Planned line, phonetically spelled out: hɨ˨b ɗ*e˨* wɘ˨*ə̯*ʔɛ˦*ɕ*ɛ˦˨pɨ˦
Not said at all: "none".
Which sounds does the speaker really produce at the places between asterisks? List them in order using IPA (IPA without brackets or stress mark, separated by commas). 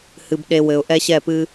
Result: e˨, ʊ̯, ɕ